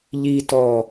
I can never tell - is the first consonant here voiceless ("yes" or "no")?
no